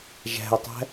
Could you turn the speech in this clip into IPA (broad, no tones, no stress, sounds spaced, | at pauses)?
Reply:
ʒ æ̤ e̯ tˤ æ̤